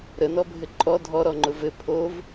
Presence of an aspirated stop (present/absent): present